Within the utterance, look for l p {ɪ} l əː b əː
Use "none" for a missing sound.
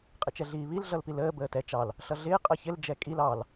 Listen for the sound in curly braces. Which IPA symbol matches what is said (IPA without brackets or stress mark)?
i